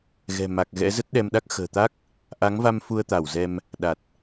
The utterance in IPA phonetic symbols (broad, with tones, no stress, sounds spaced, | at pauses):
ɣ ɛ̤˨˩ m a˨˩ k̚ ɣ ɛ̰˧˥ z ə˦˥ t̚ ɗ ɛ˧ m ɗ a˦˥ k̚ x ə̤ː˨˩ t̪ a˦˥ k̚ | ʔ a˨˦ ŋ v a˧ m f u˧ ə̯ t̪ a˧˩ w z ɛ˧ m | ɗ a˨˩ t̚